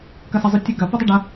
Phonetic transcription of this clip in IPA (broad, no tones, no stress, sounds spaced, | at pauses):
k ɐ s ɐ zˤ u tʲ ʉ ɡ ɐ p u dˤ u ɖ ɐ